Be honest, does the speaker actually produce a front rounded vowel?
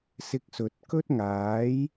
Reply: no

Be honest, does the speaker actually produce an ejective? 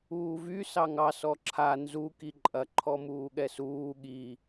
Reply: yes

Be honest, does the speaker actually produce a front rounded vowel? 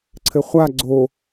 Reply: no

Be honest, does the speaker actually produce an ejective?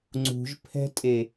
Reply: yes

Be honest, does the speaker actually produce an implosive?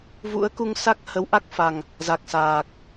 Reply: no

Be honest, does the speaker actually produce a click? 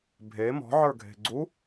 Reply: yes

